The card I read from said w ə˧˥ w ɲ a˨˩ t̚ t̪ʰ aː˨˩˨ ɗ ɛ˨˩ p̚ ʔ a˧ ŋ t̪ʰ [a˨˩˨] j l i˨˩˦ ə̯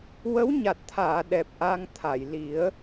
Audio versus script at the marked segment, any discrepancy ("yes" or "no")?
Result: no